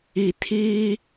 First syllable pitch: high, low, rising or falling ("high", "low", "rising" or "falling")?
low